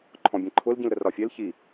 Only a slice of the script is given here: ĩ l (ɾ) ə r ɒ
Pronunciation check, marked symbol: correct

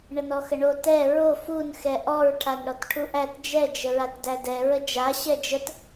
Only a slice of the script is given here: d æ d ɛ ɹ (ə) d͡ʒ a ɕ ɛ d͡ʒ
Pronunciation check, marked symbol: correct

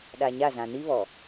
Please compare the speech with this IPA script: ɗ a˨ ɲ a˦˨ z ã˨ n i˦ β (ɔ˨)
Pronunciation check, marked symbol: correct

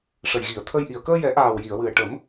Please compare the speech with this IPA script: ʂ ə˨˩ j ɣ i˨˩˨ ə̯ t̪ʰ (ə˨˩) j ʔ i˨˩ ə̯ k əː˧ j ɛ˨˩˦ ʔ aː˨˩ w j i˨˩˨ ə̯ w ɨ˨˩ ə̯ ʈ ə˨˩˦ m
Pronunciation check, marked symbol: incorrect: ə˧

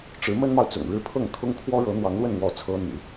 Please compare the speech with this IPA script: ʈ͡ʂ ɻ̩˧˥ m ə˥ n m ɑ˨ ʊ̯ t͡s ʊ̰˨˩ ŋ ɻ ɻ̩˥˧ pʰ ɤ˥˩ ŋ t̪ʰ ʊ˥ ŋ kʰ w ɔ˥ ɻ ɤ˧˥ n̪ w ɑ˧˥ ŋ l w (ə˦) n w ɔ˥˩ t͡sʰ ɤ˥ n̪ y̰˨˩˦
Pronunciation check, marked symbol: incorrect: ə˥˧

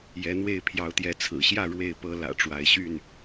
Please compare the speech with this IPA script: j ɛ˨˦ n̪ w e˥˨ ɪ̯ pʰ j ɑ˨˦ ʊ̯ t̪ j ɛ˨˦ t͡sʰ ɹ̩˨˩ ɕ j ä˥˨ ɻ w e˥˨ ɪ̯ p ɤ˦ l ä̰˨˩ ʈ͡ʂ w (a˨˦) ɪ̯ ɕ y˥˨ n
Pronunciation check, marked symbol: correct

